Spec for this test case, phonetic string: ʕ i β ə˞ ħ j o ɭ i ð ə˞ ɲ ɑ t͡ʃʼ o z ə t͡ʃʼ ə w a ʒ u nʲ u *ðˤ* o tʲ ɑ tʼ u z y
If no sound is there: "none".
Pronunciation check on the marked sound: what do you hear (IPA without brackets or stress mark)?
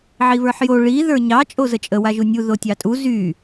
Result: ð